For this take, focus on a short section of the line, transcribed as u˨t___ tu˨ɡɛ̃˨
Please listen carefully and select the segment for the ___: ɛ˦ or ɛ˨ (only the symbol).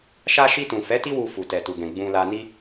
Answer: ɛ˨